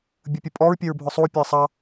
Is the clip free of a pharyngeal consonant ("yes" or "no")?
yes